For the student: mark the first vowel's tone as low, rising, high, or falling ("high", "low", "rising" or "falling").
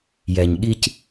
low